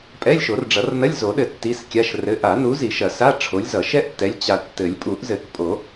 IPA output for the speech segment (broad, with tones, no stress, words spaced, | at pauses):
pʼɛ˧˥˧lʲʃo˨˩˦rɖ͡ʐʌ˨˩˦rnɐ˧˥˧lʲ zo˨˩˦ɗɘ˨ tːi˧˥˧skʲa˧˥˧ʃ rɘ˨˥ʔa˨˩˦nu˨˥ zi˨˩˦ʃɐ˨˩˦sa˧˥˧ ʈ͡ʂʰo˨˥lʲ zʌ˨˩˦ ʃɛ˥ʔtːɛ˨˥lʲ t͡ɕa˨tːɘ˨˩˦lʲ pʼu˨˩˦ʔzɘ˨˩˦kpʼo˨˩˦